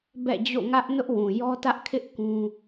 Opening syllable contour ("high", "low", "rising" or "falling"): falling